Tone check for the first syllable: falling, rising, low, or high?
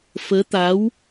rising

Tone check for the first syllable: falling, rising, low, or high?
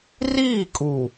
falling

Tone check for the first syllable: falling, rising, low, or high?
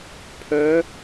rising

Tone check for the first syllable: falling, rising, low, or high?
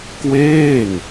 falling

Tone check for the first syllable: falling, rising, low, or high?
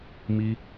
high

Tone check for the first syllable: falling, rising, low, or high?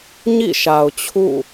falling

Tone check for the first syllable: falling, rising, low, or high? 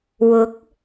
rising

